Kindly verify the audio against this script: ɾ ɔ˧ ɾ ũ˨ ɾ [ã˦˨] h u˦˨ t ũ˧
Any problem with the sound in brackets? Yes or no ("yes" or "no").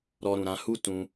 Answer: yes